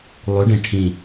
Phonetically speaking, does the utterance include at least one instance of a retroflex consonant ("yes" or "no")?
yes